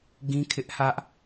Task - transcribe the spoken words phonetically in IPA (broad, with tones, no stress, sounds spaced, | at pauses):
ɡ ĩ˦ kʰ ɪ˦ ʔ h ä˦ ʔ